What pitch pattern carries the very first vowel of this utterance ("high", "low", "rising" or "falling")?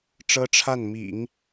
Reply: high